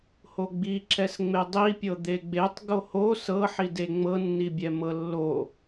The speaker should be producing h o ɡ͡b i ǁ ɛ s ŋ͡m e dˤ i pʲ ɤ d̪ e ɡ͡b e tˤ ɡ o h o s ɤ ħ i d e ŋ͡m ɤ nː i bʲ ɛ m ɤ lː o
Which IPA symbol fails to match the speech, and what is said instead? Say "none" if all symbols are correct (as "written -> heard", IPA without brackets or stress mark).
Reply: none